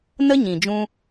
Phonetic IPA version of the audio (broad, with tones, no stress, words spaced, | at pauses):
nə˦ɲĩ˨d͡ʒũ˧